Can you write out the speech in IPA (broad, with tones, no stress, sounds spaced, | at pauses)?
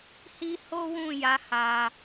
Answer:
h i˦ h o˦ w ũ˦˨ j a˨˦ h a˧